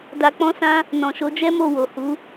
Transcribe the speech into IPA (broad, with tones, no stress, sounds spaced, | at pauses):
d a˧ k͡p ɔ̃˦ s ã˦ | n ɔ̃˨ ʃ o˨˦ d͡ʒ ɛ˦ m o˦˨ w o˨ h u˨˦